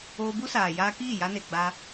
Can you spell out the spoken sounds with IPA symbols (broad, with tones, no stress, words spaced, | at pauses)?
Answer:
oː˧bu˦saː˨ jaː˧kiː˦˨ja˧ne˨ ɡ͡ba˧